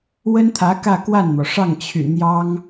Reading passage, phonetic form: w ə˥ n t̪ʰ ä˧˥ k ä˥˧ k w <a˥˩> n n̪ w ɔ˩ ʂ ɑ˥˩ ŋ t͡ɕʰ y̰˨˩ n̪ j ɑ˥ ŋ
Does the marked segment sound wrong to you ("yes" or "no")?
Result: no